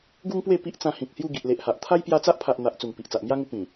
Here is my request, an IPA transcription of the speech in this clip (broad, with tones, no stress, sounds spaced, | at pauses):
ɡ u˦ ŋ p w e˥˧ p i˦ ʔ t͡s ã˧ h ĩ˨ k̚ h j u˥˧ ɡ i˨ ʔ l e˨ ʔ h a˨ ʔ t̪ʰ a˦ j p j a˧ t͡s a˦ ʔ pʰ a˨ ʔ n̪ a˨ ʔ t͡s u˨˩ ŋ p i˨ ʔ t͡s a˨ ʔ m j a˦ ŋ u˧ p ĩ˨˩